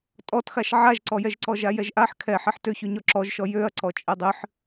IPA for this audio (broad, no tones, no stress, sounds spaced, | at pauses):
tʼ ɔ t x a ʃ ʕ a ʒ ǀ ɔ j ɛ ʒ ǀ ɔ ʒ a j ɛ ʒ ʔ a ħ kʰ ɛ ħ ɛ ħ t ø ç ø ɲ ɔ ǁ ɔ ʒ ʃ ɔ j ø ɐ̯ ǀ ɔ t͡ʃʼ ɛ dˤ ɨ ħ